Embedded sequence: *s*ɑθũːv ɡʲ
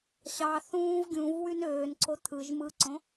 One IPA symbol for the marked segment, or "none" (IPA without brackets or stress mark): ɕ